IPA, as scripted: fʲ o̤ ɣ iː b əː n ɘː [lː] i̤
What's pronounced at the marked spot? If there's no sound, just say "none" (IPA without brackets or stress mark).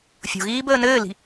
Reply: l